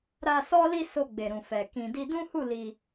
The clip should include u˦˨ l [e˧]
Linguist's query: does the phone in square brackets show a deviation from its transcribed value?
yes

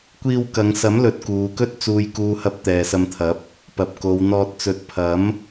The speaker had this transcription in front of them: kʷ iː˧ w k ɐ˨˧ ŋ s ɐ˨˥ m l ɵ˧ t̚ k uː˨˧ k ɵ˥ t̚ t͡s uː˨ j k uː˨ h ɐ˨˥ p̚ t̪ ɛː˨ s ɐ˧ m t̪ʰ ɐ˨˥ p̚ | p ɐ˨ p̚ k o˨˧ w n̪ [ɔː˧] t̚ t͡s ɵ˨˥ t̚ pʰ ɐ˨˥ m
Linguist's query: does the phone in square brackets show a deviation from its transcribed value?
no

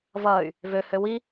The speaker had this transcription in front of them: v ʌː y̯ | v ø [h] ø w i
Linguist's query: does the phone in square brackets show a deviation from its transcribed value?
no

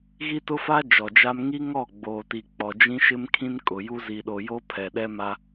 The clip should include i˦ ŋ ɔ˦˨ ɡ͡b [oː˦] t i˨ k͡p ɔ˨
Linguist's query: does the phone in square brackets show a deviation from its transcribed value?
yes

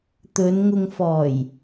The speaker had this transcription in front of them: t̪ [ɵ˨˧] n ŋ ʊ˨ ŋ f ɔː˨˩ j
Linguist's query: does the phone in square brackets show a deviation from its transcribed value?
no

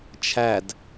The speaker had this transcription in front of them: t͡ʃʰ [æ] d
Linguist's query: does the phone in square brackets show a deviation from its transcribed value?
no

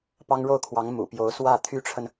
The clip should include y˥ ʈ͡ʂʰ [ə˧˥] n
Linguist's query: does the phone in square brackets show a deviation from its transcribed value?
yes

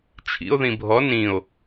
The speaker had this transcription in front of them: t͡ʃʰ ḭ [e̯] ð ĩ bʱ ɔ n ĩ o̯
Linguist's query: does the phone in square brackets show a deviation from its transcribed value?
yes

